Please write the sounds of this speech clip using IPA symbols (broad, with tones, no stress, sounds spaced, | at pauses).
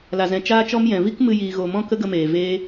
l a˨ z ɛ̃˨ t͡ʃ aː˧ t͡ʃ ɔ˧ m j ɛ̃˨ v i˦ k m ɨ˧ j iː˨ ɣ o˨ m ɔ̃˦ k ə˦ ɡ ə˧ m eː˨ v eː˦